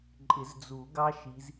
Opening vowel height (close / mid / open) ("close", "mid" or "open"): close